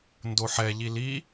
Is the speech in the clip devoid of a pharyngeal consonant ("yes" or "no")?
no